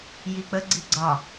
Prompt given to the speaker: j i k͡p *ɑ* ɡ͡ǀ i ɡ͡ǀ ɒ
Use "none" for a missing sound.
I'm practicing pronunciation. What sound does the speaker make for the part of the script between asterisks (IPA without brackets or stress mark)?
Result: ə